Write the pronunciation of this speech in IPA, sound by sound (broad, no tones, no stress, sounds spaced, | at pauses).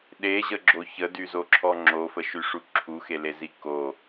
ɗ e ʑ ə ɡ͡ǁ o ç ə d y z o ǁʰ ɔ ŋ͡ǁ o f ə ʃ y ʂ u ǁʰ u x e l e z i k o